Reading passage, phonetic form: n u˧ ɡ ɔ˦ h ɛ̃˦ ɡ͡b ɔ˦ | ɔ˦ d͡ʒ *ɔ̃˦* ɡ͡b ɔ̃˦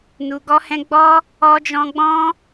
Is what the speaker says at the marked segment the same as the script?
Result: yes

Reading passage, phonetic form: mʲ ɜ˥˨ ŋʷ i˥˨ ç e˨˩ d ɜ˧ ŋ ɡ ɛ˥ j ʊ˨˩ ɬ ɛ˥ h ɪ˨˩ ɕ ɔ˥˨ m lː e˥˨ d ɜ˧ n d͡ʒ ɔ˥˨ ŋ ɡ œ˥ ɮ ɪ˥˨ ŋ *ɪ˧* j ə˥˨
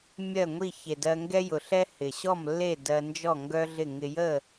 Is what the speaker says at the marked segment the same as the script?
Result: yes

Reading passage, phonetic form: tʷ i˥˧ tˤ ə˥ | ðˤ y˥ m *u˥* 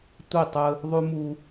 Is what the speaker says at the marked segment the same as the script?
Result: yes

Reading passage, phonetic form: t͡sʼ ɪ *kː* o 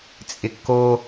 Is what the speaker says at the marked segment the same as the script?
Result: yes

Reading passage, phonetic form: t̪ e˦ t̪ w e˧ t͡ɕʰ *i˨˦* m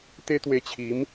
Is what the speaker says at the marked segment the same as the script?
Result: yes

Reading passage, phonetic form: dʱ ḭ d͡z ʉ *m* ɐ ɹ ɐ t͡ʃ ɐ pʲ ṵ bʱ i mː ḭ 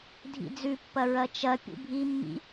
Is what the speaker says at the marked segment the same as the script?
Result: no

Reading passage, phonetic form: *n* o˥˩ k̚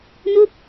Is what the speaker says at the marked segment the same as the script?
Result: yes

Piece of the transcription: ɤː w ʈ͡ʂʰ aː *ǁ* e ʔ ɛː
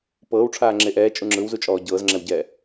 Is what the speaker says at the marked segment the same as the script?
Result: no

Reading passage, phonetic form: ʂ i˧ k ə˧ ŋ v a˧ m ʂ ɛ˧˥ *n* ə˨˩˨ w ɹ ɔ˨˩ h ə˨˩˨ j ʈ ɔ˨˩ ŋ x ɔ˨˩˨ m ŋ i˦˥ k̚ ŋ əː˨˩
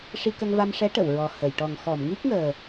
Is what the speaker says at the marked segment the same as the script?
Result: no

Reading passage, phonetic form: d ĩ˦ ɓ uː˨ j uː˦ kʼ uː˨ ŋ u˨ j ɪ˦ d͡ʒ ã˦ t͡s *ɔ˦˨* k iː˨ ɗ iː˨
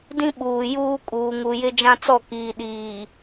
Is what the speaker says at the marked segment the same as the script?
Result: yes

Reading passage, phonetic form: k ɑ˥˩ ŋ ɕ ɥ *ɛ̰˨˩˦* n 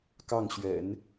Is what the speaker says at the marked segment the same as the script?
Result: yes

